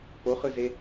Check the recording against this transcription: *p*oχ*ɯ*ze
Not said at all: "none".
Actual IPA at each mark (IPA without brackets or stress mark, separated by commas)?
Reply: p, ɯ